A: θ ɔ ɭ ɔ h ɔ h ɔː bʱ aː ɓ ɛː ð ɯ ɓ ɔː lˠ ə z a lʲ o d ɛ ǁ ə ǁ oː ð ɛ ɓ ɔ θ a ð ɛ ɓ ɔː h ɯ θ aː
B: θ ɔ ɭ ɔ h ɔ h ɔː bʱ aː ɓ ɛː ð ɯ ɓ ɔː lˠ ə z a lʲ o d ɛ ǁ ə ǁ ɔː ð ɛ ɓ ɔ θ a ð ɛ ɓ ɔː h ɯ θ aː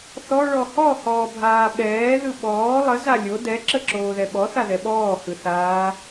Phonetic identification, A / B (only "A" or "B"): A